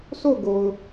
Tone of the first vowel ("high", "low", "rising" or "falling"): falling